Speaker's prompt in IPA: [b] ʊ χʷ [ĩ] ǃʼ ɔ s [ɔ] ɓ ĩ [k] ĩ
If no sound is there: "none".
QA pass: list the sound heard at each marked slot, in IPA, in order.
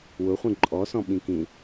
w, ĩ, ɔ̃, k

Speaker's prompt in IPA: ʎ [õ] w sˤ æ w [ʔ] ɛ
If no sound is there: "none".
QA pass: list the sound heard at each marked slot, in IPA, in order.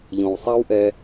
õ, ʔ

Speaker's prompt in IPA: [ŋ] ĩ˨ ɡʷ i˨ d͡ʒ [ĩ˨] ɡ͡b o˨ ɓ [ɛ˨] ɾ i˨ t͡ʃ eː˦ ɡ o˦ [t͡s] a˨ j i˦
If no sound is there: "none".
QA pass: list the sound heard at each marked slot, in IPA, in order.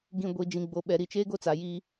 ɡ, ĩ˨, ɛ˨, t͡s

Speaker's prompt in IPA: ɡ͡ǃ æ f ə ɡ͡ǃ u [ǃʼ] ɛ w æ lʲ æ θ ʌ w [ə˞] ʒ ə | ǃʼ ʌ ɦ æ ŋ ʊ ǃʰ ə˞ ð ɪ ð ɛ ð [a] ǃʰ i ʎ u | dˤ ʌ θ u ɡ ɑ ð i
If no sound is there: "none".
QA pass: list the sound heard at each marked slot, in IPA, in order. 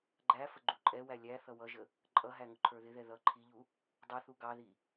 ǃʼ, ʌ, ʌ

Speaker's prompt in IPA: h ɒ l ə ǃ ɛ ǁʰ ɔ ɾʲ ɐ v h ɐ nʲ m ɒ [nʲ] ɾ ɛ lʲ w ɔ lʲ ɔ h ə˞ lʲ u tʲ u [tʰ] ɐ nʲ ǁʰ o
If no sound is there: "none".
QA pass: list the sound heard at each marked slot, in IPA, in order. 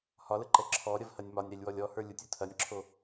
nʲ, tʰ

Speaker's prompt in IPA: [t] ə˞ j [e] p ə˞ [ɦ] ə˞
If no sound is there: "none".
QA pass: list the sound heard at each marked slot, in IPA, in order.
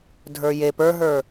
dʱ, e, ɦ

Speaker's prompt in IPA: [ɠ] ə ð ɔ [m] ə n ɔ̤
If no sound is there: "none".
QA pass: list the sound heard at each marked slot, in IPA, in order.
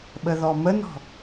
ɓ, m

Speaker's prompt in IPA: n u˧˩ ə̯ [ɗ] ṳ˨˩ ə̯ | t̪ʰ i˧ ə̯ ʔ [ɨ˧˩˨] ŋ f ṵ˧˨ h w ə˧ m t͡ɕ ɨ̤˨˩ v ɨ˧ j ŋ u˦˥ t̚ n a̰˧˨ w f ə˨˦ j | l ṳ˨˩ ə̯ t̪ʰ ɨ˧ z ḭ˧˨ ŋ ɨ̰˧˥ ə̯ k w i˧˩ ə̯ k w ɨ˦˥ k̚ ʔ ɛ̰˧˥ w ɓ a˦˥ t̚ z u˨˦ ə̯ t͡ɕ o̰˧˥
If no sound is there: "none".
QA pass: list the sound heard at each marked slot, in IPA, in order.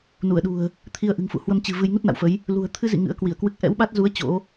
ɗ, ɨ̤˨˩

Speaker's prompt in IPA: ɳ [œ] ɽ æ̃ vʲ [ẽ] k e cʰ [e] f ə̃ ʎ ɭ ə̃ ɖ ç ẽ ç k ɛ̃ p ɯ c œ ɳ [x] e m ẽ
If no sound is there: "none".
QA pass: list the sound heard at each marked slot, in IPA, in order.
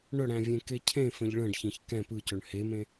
œ, ẽ, ẽ, h

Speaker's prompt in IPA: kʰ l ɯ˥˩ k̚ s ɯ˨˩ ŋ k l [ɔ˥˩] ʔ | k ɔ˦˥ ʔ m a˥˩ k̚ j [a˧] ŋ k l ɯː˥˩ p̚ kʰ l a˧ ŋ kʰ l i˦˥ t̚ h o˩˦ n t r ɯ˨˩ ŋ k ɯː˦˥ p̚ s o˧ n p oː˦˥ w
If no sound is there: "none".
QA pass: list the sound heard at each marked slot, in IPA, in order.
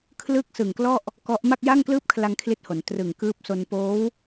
ɔ˥˩, a˥˩

